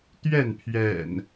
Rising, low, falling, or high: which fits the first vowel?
falling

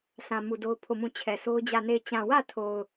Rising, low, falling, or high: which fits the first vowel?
low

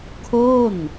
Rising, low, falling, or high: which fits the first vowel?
falling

